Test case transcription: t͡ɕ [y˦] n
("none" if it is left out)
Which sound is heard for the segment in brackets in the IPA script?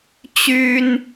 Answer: y˦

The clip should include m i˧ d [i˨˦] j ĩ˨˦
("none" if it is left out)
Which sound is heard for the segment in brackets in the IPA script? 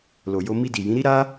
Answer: i˨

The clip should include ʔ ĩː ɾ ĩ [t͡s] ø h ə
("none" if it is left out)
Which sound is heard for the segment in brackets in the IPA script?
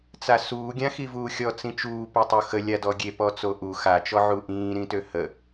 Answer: t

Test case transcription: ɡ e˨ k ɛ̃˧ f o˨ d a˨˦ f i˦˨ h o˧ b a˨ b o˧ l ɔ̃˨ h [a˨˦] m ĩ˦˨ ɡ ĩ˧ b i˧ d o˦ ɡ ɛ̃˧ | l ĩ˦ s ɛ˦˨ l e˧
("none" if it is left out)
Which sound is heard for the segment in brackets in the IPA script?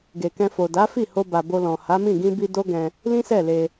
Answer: a˨˦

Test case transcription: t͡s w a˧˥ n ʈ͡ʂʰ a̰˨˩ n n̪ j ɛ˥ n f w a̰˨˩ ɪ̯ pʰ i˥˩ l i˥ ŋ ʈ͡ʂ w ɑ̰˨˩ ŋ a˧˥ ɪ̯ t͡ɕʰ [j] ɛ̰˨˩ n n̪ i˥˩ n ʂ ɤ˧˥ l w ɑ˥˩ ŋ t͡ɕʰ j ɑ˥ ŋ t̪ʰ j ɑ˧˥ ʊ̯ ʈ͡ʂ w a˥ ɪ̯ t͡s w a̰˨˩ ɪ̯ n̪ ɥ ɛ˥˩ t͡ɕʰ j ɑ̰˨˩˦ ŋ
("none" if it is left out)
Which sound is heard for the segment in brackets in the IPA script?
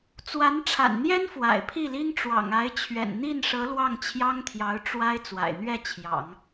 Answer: ɥ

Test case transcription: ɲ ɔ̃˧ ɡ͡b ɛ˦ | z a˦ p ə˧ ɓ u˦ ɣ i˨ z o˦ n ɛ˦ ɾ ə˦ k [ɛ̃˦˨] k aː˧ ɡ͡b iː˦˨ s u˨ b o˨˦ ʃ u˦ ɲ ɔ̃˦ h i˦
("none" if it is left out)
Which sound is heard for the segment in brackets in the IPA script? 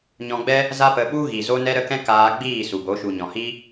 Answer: ɛ̃˦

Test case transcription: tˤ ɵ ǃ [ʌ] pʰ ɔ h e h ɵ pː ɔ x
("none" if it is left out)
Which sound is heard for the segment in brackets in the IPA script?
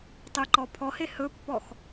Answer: ɔ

